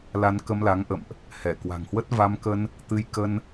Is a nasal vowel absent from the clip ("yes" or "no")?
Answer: yes